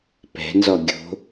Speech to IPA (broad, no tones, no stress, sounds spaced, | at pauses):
p ɛ̤ n z ɔ ɡʲ o̤